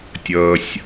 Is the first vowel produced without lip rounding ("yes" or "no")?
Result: yes